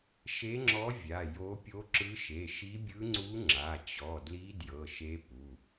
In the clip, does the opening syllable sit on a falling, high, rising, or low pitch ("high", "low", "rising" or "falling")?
rising